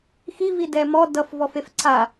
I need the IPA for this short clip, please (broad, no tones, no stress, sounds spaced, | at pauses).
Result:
x i v i d ɛ m ɔ d ʌ f v ɔ f e f ǀʰ a